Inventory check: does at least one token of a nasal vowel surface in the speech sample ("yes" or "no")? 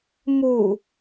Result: no